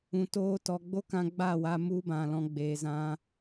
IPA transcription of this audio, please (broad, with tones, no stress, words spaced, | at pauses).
ũ˨ toː˧tɔ˨ɡ͡bo˦kã˧ ɡ͡ba˦˨wa˧ mu˦bã˨lɔ̃˧ ɡ͡beː˨zã˧